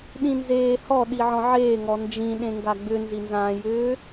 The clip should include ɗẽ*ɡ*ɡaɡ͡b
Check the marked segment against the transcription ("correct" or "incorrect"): incorrect